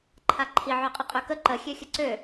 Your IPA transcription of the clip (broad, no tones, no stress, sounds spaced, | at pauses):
ǃʰ a ǃʰ i ʕ ø qʼ ɘ qʼ ø k ə ǃ ə xʲ ø xʲ ə ǀ ø